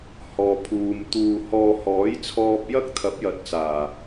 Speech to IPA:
h ɔː˨ pʰ uː˨ m t̪ uː˧ h ɔː˧ h ɔː˨˥ j t͡sʰ ɔː˧ p̚ j ɐ˥ k̚ t̪ʰ ɐ˨˥ p̚ j ɐ˨ t̚ t͡s aː˨˩

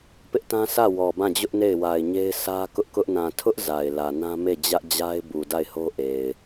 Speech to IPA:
p ɪ˦ ʔ t ã˦ sʰ ä˦˨ w ɔ˨ b ã˦˨ d͡ʑ ʊ˦ ʔ n e˦˨ ɪ̯ w a˨ ɪ̯ ɲ e˦ ɪ̯ sʰ ä˦ k ʊ˦ ʔ k ʊ˦ ʔ n ã˨ tʰ ʊ˦ ʔ z a˨ ɪ̯ l ä˨ n ã˦ m e˦˨ d͡ʑ ä˦ ʔ d͡ʑ a˦ ɪ̯ b u˨ d a˦˨ ɪ̯ h o˦ ʔ e˨ ɪ̯

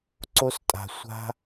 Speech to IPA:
ǀ o˦ s tʼ a̤˨ sʷ a̤˦

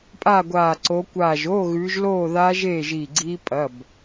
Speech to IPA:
pʼ a˥˨ ɡʷ aː˧˩ ǀ o˨˦ kʷ aː˧˩ ʒ oː˧˥˧ ɣ ʉː˨˦ ʒ l oː˥˨ ð aː˦˥ ʒ eː˥˨ ʒ iː˧˩ ɡ͡ǀ iː˦˥ pʼ ɐ˩˧˩ b

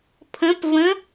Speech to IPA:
pʰ ə̃ p v ə̃

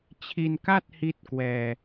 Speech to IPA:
t͡ɕʰ i˧ n k a˥˩ t̚ h i˥˩ t̚ k w ɛː˧

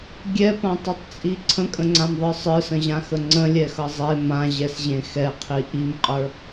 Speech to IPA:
ɡʲ ɛ p ã tˤ ʌ tˤ t͡sʼ i ǀʰ ə̃ kʼ ə̃ ŋ͡ǀ ã m ðˤ ə˞ sˤ ə˞ s ə̃ ʑ ã x ə ŋ͡ǀ ə̃ lʲ ɛ x ʌ zˤ e m ã ʑ ɛ s ʑ ẽ x ɛ qʰ i ʔ i m qʼ ə˞

